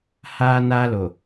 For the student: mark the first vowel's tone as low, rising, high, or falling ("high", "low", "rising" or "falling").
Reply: high